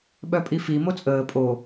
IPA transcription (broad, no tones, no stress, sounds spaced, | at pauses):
ɓ œ pʼ i f i m o t͡sʼ əː pʼ o